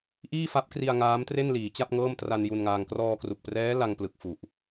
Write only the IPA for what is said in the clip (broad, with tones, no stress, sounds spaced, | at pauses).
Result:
ʔ iː˥˩ f a˦˥ p̚ k r i˧ a̯ ŋ aː˦˥ m t r e˥˩ n l iː˩˦ t͡ɕ a˥˩ p̚ ŋ ɤː˥˩ m t r a˧ n j u˧ n ŋ aː˧ ŋ k r ɔː˧ k r u˨˩ k̚ p r ɛː˦˥ l a˧ ŋ p l ɯ˨˩ k̚ f u˨˩ ʔ